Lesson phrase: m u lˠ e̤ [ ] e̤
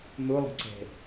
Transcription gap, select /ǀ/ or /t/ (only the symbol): ǀ